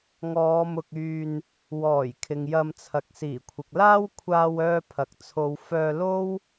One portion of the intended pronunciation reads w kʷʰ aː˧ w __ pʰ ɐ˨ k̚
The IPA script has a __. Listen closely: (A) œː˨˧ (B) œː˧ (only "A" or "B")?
B